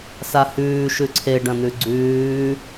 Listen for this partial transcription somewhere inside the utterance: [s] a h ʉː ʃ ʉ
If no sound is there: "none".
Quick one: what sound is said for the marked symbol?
s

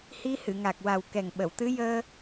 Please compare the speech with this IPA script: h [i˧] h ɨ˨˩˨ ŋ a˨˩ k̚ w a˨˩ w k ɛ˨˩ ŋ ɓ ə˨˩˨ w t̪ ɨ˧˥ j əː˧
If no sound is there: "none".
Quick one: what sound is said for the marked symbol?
i˧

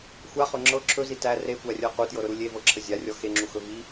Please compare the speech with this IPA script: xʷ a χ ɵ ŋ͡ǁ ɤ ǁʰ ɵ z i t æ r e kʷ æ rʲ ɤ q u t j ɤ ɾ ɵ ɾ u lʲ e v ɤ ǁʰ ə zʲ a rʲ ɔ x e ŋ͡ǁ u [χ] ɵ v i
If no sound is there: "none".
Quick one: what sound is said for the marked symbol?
x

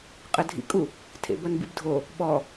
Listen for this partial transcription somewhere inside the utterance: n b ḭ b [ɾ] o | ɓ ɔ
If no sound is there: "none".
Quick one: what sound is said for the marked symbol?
dʱ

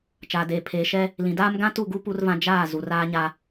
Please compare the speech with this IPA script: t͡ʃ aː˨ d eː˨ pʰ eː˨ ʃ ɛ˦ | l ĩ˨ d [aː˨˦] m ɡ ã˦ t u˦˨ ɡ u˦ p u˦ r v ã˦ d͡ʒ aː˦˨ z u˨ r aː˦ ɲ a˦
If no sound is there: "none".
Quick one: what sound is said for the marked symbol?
aː˦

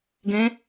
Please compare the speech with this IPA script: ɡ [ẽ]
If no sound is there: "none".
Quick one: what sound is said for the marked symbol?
ẽ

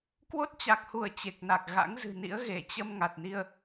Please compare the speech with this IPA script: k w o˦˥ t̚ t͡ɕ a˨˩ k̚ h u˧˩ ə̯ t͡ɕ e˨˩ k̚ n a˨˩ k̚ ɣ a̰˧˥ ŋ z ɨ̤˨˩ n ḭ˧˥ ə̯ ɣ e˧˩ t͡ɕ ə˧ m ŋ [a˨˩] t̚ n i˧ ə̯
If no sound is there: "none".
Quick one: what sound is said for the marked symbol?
a˨˩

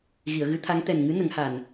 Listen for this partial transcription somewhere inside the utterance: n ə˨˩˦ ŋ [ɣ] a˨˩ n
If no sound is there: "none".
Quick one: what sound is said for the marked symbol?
h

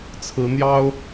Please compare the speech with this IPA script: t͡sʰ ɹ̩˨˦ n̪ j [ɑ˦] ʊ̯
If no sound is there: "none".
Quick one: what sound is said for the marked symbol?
ɑ˦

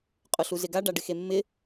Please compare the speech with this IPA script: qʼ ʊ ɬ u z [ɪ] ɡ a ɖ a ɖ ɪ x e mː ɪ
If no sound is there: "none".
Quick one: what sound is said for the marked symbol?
ɪ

